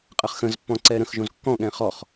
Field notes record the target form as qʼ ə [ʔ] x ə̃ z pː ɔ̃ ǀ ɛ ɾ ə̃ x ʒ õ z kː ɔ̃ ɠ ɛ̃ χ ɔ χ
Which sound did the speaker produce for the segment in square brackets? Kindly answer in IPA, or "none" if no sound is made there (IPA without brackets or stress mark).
χ